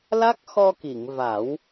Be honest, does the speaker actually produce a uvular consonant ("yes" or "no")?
no